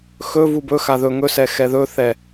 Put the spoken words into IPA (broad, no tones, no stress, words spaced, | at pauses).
xɵ vubɵ xaðɵ ŋɵsɛ xɛðɵθɛ